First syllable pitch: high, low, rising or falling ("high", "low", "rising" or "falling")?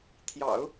low